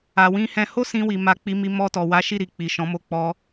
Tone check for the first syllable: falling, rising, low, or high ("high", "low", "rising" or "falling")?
low